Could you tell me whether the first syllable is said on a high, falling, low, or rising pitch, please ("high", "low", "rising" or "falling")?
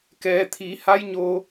low